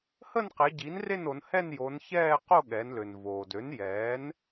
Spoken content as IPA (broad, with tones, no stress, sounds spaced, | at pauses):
h ə˥˧ n q e˩˧ ɟ i˩˥ n r e˥˧ n o˩˧ n h ɛ˥˧ n j o˩˧ n ç ɛː˥˧ q o˥˧ ɠ ɛ˩˧ n l ø˩ n v oː˩ d ø˩˥ n j ɛː˩˥ n